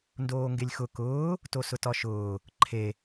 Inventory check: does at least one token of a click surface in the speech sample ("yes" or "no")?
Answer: yes